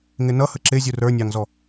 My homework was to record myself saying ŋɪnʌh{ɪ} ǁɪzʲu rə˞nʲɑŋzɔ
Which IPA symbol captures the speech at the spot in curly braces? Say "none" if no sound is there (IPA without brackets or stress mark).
ə